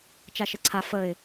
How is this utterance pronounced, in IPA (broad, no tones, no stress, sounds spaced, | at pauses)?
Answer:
t͡ʃ a ʃ ɘ ǀʰ a f ə ɪ̯